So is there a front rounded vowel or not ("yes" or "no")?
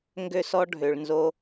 yes